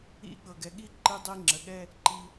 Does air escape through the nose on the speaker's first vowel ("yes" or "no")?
no